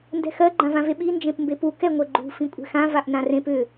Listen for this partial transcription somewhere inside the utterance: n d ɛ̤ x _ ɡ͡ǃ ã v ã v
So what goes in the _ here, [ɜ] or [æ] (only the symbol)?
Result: ɜ